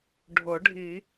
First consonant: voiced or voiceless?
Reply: voiced